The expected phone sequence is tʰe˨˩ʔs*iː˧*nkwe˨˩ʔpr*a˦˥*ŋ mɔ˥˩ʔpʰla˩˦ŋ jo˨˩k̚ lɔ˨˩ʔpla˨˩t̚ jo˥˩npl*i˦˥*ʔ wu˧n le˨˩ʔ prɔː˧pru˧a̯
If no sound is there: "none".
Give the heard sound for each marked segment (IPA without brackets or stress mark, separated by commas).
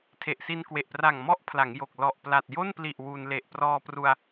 i˧, a˨˩, i˨˩